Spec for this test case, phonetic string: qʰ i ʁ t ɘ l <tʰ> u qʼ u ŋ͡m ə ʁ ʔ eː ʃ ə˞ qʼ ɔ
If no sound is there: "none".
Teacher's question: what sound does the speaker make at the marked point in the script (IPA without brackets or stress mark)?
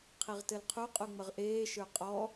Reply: qʰ